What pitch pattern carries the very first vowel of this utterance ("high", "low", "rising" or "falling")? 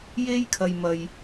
high